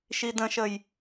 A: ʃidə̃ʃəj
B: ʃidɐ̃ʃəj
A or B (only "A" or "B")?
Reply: A